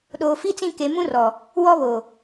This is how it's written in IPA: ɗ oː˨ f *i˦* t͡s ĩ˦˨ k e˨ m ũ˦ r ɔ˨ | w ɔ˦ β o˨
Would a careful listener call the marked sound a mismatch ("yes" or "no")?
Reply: no